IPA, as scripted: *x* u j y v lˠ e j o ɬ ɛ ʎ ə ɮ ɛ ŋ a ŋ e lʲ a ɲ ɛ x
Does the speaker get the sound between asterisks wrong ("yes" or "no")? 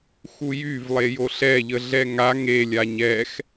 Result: no